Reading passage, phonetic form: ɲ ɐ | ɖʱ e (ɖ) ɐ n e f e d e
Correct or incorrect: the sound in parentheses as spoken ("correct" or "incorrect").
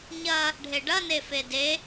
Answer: correct